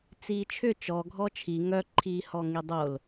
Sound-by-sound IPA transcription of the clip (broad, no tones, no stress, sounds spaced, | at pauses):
t͡s iː t͡ʃʰ ʏ t͡ʃ ɔ ɡʱ ɔ t͡ʃʰ i ŋ œ ǃʰ iː h ɔ ŋ i dˤ o l